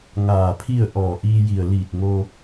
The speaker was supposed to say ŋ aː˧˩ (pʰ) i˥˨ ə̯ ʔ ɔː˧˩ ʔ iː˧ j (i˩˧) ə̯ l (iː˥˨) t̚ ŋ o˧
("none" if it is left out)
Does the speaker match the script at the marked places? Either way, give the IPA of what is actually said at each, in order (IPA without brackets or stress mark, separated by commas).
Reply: pʰ, i˧˩, iː˧˩